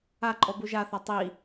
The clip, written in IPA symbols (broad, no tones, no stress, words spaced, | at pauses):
aǃʼɔ buʒaθa tˤi